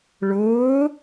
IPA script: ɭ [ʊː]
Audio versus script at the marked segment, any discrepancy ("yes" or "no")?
no